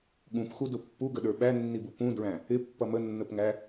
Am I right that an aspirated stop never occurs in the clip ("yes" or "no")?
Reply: yes